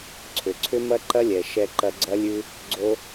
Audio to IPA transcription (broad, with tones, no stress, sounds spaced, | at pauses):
ǀʰ ʏ˨ ǀʰ ʏ˦ m ɐ˦ ǃ ɐ˦ lʲ ɛ˨ ʃ ɛ˧ ǃ ɐ˧ ɡ͡ǀ ɐ˦ lʲ ʉ˦ | ɡ͡ǀ o˦